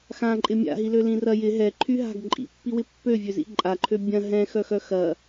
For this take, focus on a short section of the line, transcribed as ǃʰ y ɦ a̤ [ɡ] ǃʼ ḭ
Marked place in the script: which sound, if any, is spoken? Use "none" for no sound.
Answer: ɡ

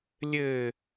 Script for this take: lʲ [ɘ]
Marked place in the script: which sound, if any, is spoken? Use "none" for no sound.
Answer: ɘ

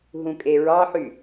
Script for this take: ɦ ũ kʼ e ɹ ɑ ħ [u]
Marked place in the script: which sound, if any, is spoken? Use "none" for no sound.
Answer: y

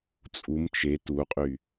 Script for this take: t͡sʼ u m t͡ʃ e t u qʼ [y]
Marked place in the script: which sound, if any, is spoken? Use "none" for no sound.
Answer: y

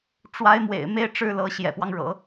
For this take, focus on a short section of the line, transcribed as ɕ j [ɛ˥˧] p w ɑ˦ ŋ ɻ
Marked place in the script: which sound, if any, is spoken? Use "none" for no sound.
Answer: ɛ̰˨˩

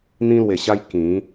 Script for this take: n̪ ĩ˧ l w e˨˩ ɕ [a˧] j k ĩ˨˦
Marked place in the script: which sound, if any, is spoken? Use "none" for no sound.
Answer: a˧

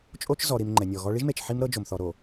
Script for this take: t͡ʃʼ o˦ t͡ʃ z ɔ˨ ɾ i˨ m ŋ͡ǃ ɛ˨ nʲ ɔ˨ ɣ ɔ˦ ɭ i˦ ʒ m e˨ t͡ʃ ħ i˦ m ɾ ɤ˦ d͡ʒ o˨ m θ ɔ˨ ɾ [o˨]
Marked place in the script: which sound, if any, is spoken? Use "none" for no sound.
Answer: o˨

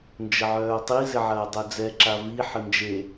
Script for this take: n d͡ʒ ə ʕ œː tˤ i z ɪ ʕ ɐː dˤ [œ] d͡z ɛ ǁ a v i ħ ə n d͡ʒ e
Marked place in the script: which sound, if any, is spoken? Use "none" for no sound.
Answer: œ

